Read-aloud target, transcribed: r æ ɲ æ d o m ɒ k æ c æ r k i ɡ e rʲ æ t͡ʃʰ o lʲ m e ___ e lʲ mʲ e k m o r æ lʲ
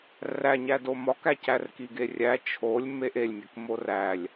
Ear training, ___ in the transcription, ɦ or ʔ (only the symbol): ʔ